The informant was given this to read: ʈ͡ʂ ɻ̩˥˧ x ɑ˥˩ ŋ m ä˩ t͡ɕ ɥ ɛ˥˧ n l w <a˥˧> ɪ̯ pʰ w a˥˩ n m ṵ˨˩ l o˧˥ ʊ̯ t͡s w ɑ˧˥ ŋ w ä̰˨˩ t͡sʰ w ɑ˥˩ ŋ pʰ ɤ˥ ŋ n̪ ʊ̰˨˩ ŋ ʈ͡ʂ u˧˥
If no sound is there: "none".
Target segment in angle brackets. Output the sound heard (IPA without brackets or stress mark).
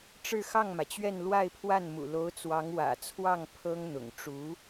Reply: a˥˧